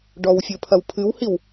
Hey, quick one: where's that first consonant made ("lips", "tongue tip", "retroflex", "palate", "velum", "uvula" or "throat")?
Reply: retroflex